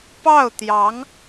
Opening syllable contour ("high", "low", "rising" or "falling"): falling